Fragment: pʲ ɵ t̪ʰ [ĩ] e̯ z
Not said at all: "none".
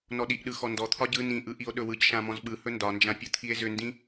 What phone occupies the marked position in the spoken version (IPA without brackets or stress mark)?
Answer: i